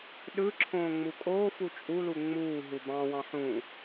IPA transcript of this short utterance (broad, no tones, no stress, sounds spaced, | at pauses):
ɗ ɯ ǁʰ õː ŋ͡m u kʼ oː f u t͡ʃʼ u l u ŋ͡m uː ɦ u b ɑ̃ w ɑ̃ ħ ũ